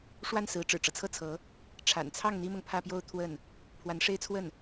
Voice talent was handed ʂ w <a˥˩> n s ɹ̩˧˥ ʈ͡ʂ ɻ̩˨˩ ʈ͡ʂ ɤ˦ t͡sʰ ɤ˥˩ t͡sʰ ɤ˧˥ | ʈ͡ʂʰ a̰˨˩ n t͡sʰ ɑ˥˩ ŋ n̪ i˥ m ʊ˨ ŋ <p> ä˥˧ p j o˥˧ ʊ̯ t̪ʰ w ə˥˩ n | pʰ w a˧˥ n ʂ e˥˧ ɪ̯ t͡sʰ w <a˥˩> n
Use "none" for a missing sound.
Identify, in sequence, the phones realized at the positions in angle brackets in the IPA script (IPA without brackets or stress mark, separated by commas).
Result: a˥˩, pʰ, ə˥˩